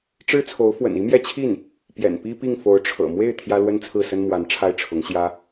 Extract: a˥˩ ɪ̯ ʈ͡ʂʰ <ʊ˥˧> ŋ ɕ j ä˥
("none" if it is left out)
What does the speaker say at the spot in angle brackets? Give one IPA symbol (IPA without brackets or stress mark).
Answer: ʊ˧˥